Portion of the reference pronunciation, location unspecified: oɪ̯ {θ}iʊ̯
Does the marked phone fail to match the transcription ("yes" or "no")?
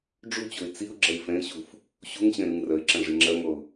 yes